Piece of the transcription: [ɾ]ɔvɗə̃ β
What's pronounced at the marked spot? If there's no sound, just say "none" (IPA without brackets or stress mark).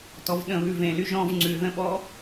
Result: t